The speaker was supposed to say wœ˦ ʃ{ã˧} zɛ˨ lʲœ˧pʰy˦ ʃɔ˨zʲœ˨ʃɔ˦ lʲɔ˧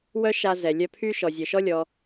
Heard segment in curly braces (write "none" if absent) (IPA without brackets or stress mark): a˧